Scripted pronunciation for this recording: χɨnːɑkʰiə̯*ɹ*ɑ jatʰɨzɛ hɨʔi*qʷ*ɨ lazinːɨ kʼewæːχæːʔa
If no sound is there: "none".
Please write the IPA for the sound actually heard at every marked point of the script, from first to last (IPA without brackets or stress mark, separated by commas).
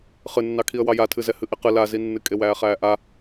w, q